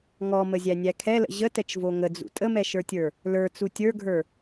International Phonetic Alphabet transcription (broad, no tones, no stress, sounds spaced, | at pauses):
ŋ ɔ m ə zʲ æ nʲ æ kʰ ɛ l ə̰ ʑ ə t ɛ t͡ʃ v o ŋ ə d͡z ṵ tʼ ə m ɛ ʃ ə˞ tʲ ə˞ | l ə˞ t͡s u tʲ ə˞ ɡʱ ə˞